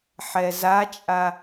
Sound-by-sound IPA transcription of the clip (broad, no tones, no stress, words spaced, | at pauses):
ħɛzat͡ʃʼa